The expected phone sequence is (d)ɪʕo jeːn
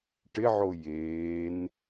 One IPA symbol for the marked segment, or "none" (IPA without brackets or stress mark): ʈ